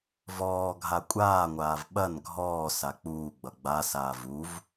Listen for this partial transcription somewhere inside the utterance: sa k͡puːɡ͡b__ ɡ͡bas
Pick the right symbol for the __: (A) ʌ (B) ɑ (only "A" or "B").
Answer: A